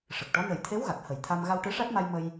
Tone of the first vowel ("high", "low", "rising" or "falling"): low